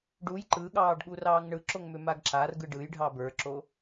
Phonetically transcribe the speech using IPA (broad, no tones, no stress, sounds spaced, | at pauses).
ɖ u j ǃ ɯ ɠ ɑː ɖ ɠ u r ɑː ŋ ɳ ɯ ǁ o ŋ m ʏ m a ɡ ǁ a r ɡ ɯ ɖ ɯ j ɖʱ ɑ b ə˞ ǁ o